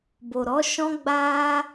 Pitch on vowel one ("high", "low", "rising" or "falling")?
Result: low